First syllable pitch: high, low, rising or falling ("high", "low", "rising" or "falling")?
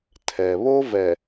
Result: low